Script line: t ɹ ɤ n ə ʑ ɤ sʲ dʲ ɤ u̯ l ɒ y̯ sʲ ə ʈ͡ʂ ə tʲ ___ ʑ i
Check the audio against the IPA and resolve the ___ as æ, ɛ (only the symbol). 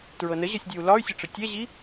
ɛ